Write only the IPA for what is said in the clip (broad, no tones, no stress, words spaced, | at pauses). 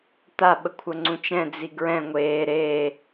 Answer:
t̪a ɓəkʷʰəŋ͡ǀũt͡ʃɛ̃ d͡ziɡɹɛ̃ ŋʷeː ɾeː